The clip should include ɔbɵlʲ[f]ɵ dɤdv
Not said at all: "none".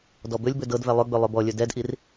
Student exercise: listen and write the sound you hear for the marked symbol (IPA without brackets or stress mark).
b